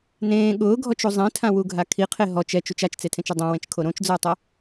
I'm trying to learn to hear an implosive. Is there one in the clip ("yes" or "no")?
yes